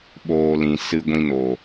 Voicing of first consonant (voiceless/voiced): voiced